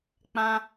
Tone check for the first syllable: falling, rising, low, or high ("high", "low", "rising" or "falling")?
high